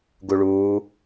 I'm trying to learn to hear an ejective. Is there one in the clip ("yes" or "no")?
no